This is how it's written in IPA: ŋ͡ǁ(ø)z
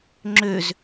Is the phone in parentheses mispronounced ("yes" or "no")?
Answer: no